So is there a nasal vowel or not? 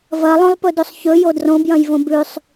yes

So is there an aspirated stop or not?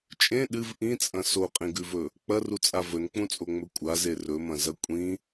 no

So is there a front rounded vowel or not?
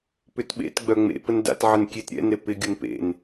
yes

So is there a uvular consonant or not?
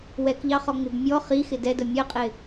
yes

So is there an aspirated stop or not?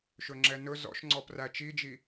no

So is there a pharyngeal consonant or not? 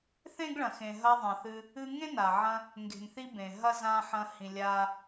yes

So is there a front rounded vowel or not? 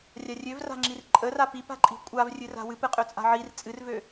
yes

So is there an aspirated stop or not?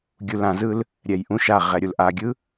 no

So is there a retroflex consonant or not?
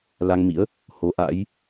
no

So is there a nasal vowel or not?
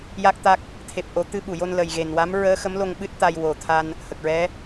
no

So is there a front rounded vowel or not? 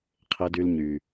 yes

